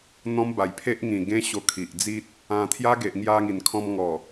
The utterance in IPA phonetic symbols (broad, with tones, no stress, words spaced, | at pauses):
n̪ɔ̃˦mba˨˩jpʰe˦ʔŋĩ˨˩ ɡẽ˦ ɕo˧kʰi˨ʔd͡zi˦t̚ | ã˧ t̪ʰja˦ɡe˨ʔŋja˧ŋi˨˩n kʰɔ̃˧mŋɔ˨˩